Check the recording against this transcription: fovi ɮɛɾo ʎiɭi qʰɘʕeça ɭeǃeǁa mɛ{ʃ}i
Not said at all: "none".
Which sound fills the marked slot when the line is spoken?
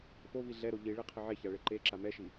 ʃ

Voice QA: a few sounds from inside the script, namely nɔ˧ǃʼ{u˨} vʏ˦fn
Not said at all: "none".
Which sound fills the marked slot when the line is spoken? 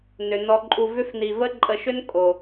u˧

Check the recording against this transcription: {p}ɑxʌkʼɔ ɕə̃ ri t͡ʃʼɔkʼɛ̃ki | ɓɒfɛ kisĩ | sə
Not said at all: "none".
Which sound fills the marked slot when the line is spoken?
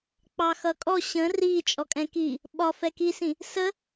k͡p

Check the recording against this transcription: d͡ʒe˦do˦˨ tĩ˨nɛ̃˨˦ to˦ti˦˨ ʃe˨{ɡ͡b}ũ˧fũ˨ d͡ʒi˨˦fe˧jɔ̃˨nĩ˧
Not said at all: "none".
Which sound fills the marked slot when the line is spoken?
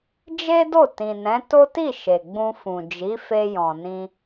ɡ͡b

